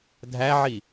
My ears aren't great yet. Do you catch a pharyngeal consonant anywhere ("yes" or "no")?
yes